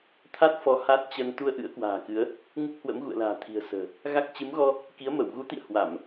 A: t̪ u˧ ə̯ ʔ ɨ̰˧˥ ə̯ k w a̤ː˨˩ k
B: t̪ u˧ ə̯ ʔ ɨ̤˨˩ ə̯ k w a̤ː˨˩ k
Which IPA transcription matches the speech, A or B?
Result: A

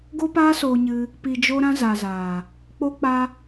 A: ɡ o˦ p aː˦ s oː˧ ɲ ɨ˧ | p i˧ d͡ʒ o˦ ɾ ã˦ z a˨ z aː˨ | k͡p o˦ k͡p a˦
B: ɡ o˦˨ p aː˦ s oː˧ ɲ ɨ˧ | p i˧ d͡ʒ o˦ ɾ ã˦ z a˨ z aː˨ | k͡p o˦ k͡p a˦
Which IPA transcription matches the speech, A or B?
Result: A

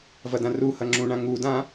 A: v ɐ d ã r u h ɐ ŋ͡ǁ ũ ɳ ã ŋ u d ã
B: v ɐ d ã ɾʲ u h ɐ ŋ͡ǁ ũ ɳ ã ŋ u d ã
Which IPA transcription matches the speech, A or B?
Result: A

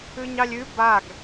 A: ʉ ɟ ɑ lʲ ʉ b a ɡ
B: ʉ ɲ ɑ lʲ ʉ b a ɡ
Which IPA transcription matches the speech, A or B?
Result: B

